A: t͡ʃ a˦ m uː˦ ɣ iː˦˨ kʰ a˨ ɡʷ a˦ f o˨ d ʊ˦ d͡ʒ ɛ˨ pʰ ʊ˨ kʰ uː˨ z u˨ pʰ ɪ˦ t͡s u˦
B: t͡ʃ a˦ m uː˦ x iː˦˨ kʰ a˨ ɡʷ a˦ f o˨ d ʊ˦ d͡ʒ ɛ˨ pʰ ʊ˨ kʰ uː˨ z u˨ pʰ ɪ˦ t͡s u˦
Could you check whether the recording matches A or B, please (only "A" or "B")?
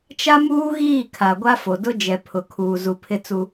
A